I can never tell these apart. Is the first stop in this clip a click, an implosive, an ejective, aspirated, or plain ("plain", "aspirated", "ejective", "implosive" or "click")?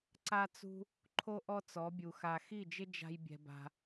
click